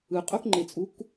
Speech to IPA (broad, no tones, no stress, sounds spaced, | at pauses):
ɯ qʼ o k ŋ͡ǃ e t͡sʼ u k